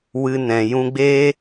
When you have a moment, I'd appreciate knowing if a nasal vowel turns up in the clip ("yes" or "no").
yes